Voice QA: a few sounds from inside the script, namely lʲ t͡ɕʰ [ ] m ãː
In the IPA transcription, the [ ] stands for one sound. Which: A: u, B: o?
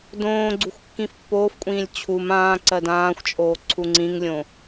A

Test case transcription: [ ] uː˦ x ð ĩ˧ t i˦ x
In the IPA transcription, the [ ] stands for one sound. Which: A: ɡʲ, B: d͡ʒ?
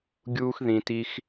A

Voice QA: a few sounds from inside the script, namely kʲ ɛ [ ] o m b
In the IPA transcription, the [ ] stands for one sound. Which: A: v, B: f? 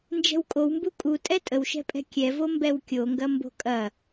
A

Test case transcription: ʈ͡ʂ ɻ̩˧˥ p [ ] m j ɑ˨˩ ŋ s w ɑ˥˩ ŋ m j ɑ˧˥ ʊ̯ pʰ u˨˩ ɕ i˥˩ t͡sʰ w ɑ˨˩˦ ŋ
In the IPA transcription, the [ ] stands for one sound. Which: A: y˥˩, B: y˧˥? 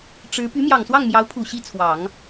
B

